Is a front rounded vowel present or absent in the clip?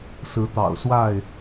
absent